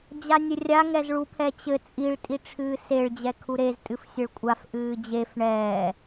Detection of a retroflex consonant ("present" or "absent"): present